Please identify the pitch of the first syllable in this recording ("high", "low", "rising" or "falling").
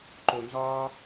low